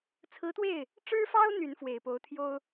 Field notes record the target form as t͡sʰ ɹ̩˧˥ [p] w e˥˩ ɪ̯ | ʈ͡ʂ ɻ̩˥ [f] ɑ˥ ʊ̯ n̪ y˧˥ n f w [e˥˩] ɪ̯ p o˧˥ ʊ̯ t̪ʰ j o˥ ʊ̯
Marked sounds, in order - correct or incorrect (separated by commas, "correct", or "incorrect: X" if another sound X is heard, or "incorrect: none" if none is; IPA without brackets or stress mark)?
incorrect: t̪, correct, incorrect: e˨˩